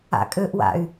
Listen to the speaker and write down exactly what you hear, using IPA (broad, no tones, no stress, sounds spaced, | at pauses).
a̰ kʼ ø ʔ w a̰ y̯